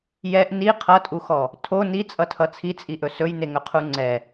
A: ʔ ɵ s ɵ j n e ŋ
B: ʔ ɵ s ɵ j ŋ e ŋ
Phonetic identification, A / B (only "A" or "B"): A